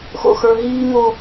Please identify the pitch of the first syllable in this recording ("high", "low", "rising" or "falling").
high